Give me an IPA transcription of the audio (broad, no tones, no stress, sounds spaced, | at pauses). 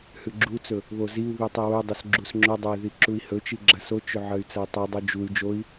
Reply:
h ʉ ɡ͡ǁ u t͡s ɵ | β o z i u̯ β i tˤ i w ɵ dˤ ɵ s ɡ͡ǁ u s ŋ͡ǁ ɵ dˤ o i̯ ð i ǁ u i̯ h ɵ t͡ʃ i ɡ͡ǁ ɐ s o t͡ʃ ɵ ʕ ɐ y̯ t͡s ɐ i̯ tˤ u dˤ o d͡ʒ u y̯ d͡ʒ o i̯